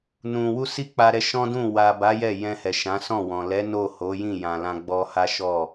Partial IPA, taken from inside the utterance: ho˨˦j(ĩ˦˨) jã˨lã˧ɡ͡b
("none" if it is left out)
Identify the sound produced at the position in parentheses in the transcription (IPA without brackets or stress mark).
ĩ˦˨